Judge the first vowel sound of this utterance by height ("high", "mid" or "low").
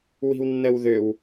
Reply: high